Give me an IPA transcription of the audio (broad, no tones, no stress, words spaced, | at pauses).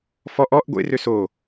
fɔʔ ɔʔ ɡʷḛrø so